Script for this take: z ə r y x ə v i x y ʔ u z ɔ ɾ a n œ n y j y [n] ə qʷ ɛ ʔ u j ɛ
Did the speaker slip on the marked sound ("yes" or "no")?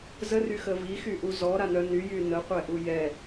no